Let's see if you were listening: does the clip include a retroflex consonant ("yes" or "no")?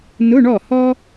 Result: yes